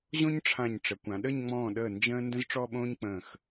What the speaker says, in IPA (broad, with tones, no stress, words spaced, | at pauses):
ʑõ˥ɲʈ͡ʂʰã˧˩ɲ ʈ͡ʂə˩˧kʷã˩˧ɗə˥˧ɲ ŋ͡mɔ̃ː˧˩ɗəː˧˩ nd͡ʒə̃ː˥ ndə̃˥zʈ͡ʂɔ˥˧ɓõː˥ɲ k͡pə̃ː˧˩x